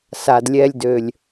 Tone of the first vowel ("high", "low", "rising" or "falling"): low